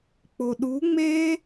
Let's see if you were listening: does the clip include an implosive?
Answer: yes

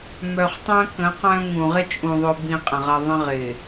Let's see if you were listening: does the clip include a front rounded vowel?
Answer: yes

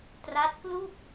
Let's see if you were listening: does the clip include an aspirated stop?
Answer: no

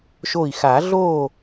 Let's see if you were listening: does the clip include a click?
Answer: no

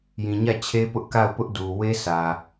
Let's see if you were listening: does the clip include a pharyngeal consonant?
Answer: no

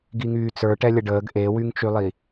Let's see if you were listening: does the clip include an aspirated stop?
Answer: no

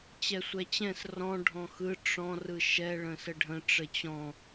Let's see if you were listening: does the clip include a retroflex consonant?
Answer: yes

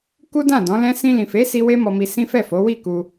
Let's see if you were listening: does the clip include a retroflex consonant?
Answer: no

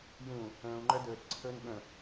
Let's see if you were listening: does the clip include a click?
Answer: yes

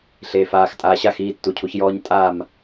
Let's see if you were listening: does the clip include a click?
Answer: no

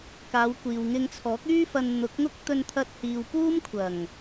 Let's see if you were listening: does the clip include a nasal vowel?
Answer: no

